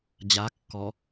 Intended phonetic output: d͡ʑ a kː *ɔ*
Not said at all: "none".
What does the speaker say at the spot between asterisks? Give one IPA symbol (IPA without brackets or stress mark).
ɔ